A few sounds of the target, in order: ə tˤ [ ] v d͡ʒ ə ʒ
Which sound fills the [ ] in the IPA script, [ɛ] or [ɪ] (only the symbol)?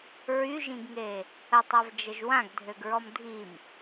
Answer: ɛ